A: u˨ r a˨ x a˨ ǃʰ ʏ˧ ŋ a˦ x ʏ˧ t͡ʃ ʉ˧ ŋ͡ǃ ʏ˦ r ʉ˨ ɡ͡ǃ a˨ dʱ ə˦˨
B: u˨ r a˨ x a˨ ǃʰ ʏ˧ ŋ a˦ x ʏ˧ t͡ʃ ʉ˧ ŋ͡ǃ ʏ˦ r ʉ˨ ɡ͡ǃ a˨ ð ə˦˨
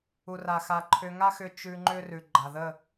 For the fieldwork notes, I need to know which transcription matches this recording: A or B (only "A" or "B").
B